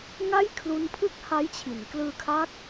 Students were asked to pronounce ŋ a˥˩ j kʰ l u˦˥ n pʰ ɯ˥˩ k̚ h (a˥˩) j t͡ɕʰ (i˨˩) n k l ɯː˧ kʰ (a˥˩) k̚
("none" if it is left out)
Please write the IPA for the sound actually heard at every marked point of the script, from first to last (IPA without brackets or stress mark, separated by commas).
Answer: a˦˥, i˩˦, a˦˥